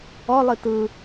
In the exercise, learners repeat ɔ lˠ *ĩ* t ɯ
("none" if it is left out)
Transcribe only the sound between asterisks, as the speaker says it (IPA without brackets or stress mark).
i